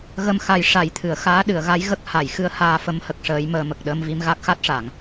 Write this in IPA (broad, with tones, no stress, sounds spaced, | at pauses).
ɣ ə˧ m x a˨˩ j ʂ a˨˩˦ j t̪ʰ ɨ˨˩˨ ə̯ x aː˧˥ ɗ ɨ˨˩˨ ə̯ ɣ a˧˥ j ɣ ə˦˥ k̚ h a˨˩˨ j x ɨ˧˥ ə̯ h aː˧ f ə˧˥ m h ə˨˩ k̚ ʂ əː˧˥ j m əː˧ m ə˨˩ k̚ ɗ əː˧ m v i˧ m ɣ a˦˥ k̚ x a˦˥ t̚ ʂ a˨˩˨ ŋ